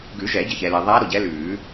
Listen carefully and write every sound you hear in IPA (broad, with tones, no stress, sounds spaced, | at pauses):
ɡ ʉ˨˩˦ ʒ ɛ˨˩˦ ɟ ə˩ ç ɛ˩ l ɛ˩ ðˤ æː˧˥ ɾ o˩ ɟ ɛ˧˥ l ʉː˨˩˦